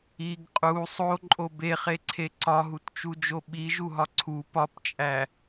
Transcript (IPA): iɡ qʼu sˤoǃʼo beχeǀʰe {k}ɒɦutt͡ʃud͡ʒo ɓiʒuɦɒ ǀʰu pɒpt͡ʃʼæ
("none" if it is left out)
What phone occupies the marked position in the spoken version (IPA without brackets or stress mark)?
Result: ǀ